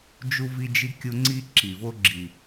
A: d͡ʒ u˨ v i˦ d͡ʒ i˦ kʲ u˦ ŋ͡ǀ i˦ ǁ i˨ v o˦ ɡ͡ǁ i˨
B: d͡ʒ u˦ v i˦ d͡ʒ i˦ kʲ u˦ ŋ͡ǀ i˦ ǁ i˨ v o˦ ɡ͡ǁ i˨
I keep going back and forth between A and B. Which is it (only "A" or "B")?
B